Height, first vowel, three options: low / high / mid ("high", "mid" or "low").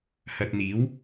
low